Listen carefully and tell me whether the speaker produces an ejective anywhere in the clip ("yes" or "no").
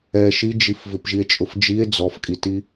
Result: yes